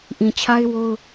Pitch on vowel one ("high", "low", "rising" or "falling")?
low